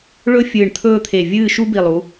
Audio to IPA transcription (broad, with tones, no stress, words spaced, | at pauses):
ɭɵ˥ fʲɨː˧˩ɳt̪ʰɵː˥˧t̪ʰe˧˩ vʲɨː˥˧ ʃu˥bi˧˩lˠu˩˧